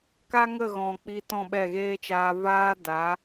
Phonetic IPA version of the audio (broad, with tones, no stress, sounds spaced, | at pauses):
k a˦ ŋ ə˦˨ ɣ ɔ̃˨ k͡p i˧ t ɔ̃˦˨ ɓ ɛ˦˨ ɣ eː˦ t͡ʃ aː˧ v aː˦ d a˨˦